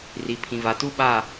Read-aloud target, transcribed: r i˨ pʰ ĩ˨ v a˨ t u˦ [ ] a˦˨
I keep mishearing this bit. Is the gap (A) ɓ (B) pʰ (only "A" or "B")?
A